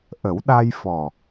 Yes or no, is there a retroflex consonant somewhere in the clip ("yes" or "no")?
no